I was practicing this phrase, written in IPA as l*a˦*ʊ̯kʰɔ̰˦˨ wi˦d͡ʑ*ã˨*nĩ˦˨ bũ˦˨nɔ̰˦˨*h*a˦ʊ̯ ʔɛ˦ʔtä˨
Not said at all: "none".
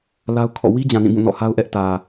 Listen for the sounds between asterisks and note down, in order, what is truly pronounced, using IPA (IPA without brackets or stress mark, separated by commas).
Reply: a˦, ã˨, h